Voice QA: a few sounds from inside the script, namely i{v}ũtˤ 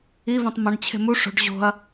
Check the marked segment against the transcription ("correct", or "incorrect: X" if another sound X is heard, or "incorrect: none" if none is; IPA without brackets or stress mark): correct